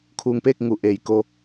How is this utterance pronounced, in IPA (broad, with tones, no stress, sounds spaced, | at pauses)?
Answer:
kʰ uː˧ ŋ p eː˥˨ k̚ ŋ u˩˧ ʔ eː˩ j k o˧